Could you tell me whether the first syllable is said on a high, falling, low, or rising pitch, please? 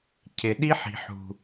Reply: low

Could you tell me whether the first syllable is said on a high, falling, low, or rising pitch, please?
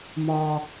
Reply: low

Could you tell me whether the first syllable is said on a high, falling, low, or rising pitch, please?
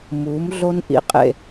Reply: rising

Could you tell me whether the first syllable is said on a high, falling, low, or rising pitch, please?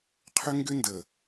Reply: high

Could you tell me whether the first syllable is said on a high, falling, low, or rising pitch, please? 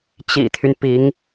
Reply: low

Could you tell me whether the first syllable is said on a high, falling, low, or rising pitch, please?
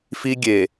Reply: high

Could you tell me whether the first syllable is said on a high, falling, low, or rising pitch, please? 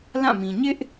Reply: falling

